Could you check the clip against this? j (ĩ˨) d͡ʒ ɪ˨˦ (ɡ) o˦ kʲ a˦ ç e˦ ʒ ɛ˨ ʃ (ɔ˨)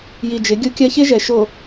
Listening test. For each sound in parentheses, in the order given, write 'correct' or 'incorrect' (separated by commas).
incorrect, incorrect, incorrect